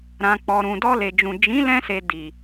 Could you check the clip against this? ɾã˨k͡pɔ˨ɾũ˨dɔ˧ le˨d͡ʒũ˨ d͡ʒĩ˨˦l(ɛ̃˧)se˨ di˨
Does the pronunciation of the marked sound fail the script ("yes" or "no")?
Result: no